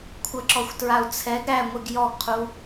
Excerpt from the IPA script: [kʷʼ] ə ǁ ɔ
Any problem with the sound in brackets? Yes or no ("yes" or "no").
yes